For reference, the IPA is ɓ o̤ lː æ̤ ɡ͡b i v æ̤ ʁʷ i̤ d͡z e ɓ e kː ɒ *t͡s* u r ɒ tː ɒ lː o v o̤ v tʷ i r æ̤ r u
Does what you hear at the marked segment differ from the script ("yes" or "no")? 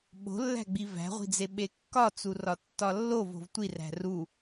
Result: no